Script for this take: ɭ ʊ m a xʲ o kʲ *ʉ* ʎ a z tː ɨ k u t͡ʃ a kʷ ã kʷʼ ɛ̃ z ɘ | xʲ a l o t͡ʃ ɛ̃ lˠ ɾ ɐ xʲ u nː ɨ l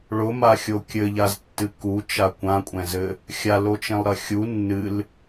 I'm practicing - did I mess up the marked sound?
yes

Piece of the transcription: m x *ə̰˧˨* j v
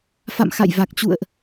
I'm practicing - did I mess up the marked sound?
yes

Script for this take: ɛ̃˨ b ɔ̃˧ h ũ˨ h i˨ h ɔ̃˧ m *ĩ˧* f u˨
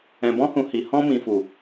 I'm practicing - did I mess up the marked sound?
yes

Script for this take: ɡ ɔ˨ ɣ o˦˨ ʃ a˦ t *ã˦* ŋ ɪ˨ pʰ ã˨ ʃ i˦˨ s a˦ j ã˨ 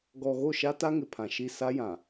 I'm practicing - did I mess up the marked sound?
yes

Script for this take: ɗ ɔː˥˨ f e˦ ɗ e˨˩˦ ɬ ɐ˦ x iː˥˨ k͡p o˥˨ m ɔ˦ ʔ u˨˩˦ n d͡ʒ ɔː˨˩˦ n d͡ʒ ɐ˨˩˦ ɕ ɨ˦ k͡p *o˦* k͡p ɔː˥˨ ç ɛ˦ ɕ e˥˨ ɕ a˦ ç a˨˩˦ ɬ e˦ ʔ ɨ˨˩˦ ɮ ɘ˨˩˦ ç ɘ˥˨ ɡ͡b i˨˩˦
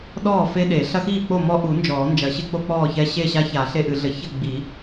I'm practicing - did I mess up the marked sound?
no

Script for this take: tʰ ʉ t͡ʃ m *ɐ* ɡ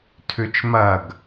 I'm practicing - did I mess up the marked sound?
no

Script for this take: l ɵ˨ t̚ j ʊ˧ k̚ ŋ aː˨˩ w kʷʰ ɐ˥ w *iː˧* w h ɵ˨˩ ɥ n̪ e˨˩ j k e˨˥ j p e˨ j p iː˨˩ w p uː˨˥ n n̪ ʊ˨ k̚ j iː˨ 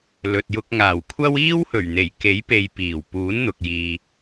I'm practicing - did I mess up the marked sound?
yes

